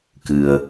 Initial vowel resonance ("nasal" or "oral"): oral